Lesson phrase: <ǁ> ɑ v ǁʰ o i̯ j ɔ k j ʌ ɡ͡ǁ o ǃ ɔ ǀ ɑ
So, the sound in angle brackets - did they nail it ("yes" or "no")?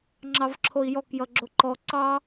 no